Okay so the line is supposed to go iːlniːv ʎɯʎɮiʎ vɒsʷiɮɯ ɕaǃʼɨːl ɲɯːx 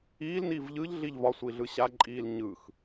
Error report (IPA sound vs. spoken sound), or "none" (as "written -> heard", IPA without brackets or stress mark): ɨː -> iː